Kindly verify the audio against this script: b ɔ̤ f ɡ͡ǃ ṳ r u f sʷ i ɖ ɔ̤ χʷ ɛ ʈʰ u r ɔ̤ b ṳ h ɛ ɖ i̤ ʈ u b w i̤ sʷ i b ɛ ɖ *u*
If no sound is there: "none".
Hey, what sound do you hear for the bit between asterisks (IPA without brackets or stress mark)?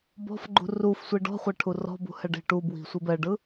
ɯ